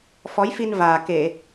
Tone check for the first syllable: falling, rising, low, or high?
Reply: rising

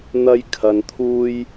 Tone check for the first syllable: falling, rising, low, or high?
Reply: high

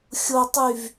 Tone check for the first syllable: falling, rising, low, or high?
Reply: low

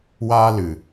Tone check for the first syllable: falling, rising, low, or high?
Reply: high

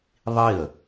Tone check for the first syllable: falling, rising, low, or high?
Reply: falling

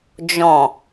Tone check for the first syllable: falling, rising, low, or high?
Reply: low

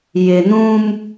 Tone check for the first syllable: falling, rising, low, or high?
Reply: low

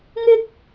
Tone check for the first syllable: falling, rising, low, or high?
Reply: high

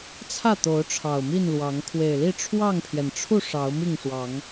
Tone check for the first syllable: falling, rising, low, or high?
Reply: falling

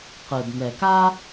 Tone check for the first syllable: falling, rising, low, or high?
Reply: low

